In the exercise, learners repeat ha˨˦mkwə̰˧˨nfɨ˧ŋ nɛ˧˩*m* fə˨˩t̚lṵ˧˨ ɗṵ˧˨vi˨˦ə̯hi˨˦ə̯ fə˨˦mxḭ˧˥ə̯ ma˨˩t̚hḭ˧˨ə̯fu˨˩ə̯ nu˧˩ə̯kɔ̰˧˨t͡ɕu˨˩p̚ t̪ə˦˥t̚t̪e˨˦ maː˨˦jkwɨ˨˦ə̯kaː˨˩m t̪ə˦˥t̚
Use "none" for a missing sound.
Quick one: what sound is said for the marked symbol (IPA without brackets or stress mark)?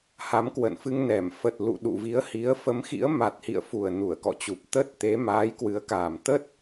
m